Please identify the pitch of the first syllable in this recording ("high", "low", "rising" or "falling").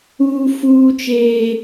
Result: high